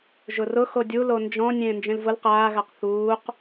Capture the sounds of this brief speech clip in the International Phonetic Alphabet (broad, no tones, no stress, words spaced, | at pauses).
ʒʊrʊ xodʲulo nd͡ʒɔ̃ nʲẽːnd͡ʒẽlvʊl qaːɣaq θuːq